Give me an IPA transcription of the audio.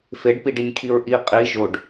feɖpiɖinʲkʰiɹ ʔi qʼi ʒoɖ

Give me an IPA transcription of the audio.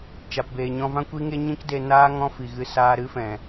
t͡ʃa˨pbeː˨ɲɔ̃˧vã˦ kʷi˦ ŋe˦ ɲĩ˦kde˧naː˦ ŋɔ̃˦fi˨ɣɨ˧ saː˧ɾɨ˦fɛ̃˨

